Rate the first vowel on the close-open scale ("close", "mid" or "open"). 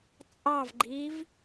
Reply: open